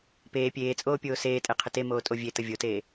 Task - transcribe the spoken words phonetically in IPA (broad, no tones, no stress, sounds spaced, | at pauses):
p eː pʲ eː t͡sʼ oː pʲ oː s eː tʼ ɛ qʰ ə t e m oː tʼ o vʲ e t ə vʲ o t eː